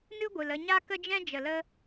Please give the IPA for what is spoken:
nɨ˦ɡʷɨ˨l ə˧ɲa˦kə˦d͡ʒɛ̃˦ d͡ʒə˨lə˧

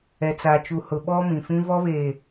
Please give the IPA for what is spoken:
ɛ˨ t͡sa˨t͡ʃu˨hʊ˨ ɓɔ˦mĩ˨fĩ˦ vɔ˦βe˨

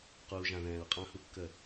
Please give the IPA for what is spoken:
quː˨ʒã˨ ðɛ̃ː˨ɹqʼã˦hu˦kːə˦˨

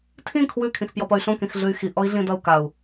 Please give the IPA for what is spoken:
tʰĩ kʰwʉ kʰĩxpjɔpʌy̯ɬõ kĩxɮʉy̯xi ʔɔi̯ɮĩdʌu̯ kau̯

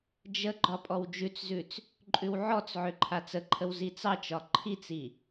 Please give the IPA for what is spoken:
d͡ʒə ɡ͡ǃɒpʼɔwd͡ʒʉt͡szʉt͡s | ǃʼʉwʕɔt͡sʕʏ ǃʰat͡səǃʰəw zit͡sɑt͡ʃɒ ǃʰit͡si

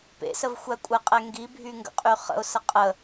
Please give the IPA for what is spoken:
pḛsəvxʷæ kʷʼɛqʼɛ ŋɡibʱyŋɡə̰qʼy χə̰ʊ̯sə qʼə

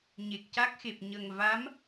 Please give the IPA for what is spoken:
ɲe˨˩k̚ca˦˥k̚xe˨˩p̚ ɲə˨˩ŋ va˧˥m

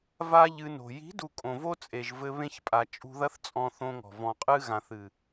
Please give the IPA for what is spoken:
va˦ʎɨ˧no̤˨ ji̤˨˦du˨ kʼõ˨vo˦t͡sʼe˨ʒvɘ˧ βẽ˧çpʼa˨ t͡ʃʼṳ˧ðɐ˦θt͡sʼɔ̃˧ θõ˧ŋɔ̤˨ vɔ̃˨qʼɨ˧ɣã˨θɨ˨

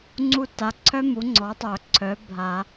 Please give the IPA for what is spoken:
ŋ͡ǀu˦˨ ta˩˧˩ǀʰœ˥mu˩˥ ŋ͡ǀɔ˩˥tˤœ˨˩˦ǀʰœ˩˥ bʱa˨˩˦

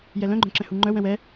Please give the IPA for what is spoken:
jɛlœ̃ɡ͡ǃœ̃ǁɛ̃ huŋ͡ǃœ wɛ̃wɛ

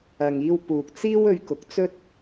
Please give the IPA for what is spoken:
ɐ˨ŋiː˧w puː˨k̚t͡siː˥w ɵ˧ɥkʊ˨˥k̚ t͡sɵ˥t̚

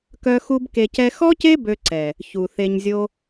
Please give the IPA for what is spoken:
kœ˦xu˦bke˧cɛ˦ xɔ˦ce˦ bø˦ǀɛ˨ | çu˨θe˧ɲzʲo˦

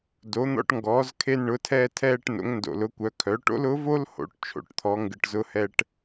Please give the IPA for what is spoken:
do˩˧n̪ɔ̰˧ʈ ŋɡɔː˩˧zkʰe˧nɳʊ˩˧tʰɛː˧ tʰɛː˧ʈ no̰˩˧ŋndo̰˩lʊ˩˧kʷœ˩˧ kʰœ˩˧ʈo̰˥lʊ˧˥ vo˥lho̰˩˧ʈ t͡ʃʰo̰˩˧ʈt̪ʰɔ˩˧ ŋɡɨ˩ʈzʊ˧hɛ˧ʈ

